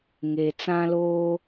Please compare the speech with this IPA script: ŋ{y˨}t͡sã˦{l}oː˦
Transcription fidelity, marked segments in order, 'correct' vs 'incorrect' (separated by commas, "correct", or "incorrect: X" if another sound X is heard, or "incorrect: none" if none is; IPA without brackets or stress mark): incorrect: e˨, correct